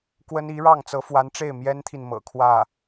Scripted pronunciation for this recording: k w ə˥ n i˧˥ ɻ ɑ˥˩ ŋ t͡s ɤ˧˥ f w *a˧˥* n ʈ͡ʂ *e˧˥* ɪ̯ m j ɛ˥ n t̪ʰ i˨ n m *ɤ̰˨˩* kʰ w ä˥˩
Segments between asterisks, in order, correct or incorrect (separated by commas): correct, incorrect, correct